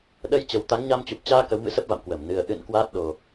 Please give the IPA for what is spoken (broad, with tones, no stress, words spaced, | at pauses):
ɗə˧j t͡ɕə˨˩w t̪a˨˦ŋɲa˧mt͡ɕu˨˩p̚ t͡ɕaː˧ kə˨˦wmɨ̰˧˥ sə˦˥p̚va̰˧˨mkwəː˧˩m nɨ˨˩ə̯ ʔɨ̰˧˨n kwaː˦˥t̚ɗo˨˩